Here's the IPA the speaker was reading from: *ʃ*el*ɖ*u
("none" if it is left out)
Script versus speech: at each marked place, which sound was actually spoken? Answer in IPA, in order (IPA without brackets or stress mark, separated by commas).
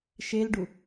ʃ, ɖ